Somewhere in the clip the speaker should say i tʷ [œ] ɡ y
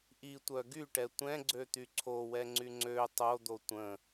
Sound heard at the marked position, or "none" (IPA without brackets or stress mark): œ